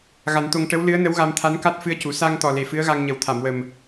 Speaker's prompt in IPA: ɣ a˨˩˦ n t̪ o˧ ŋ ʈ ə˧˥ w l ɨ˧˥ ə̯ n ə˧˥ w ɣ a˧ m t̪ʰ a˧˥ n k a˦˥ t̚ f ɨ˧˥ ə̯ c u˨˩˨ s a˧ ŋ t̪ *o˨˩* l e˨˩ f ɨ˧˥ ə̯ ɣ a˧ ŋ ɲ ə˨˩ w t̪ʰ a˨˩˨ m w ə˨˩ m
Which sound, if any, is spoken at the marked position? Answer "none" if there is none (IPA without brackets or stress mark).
ɔ˨˩